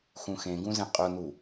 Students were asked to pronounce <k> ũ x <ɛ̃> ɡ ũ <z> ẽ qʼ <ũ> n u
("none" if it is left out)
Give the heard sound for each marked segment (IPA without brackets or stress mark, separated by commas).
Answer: x, ẽ, z, u